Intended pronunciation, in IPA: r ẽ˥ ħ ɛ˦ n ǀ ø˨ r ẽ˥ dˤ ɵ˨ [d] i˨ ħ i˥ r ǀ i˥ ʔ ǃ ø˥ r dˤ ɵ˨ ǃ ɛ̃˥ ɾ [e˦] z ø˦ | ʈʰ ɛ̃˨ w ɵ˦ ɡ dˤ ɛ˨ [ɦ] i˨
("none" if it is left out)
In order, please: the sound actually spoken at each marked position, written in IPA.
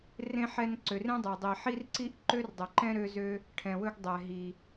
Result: dˤ, ø˦, ɦ

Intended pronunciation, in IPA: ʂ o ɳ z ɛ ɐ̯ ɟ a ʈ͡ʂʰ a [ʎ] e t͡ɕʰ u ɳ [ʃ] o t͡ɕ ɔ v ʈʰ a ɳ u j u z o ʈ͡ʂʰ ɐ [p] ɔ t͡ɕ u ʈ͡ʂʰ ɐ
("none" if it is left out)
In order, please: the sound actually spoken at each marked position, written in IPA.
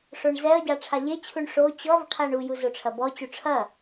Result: ʎ, ʂ, b

